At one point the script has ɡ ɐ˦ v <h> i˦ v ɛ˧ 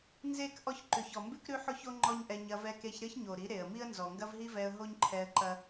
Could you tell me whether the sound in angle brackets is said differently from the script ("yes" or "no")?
yes